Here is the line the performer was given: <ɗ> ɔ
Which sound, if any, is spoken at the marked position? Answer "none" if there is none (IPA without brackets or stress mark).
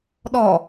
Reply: ɗ